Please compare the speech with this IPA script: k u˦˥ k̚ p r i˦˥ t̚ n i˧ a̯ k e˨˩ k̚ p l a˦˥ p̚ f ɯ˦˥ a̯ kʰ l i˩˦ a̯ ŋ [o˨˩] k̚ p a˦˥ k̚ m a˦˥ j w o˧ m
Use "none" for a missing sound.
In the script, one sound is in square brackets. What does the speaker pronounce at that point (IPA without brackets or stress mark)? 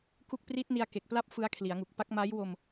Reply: u˨˩